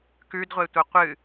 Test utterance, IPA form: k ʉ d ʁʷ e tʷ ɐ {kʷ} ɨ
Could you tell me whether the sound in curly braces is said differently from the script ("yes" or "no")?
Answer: yes